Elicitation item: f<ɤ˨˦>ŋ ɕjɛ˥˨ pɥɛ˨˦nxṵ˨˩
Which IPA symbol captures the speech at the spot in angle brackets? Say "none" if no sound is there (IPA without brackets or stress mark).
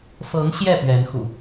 ɤ˨˦